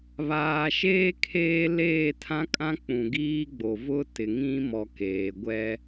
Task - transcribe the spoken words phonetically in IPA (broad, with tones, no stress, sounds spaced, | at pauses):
β aː˨ ʃ eː˦ kʰ eː˦ l eː˦˨ tʰ ã˦ kʼ ã˦ k͡p ũ˨ ɡ iː˦ ɡ͡b o˨ v ʊ˦ t ɪ˨ ŋ ĩ˦ m ɔ˨ k eː˨ ɡʷ ɛ˦